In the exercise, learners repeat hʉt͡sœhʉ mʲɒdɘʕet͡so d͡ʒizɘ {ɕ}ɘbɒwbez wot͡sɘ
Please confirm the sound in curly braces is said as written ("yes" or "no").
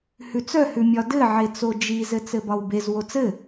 no